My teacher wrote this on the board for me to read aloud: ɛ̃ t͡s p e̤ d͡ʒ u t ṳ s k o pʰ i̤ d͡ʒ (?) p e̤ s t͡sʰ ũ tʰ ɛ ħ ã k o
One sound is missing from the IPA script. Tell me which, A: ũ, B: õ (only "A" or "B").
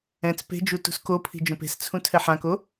B